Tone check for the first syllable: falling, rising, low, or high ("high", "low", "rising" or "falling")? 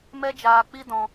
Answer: high